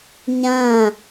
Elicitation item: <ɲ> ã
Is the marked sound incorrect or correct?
correct